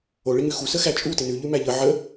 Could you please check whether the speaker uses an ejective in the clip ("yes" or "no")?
yes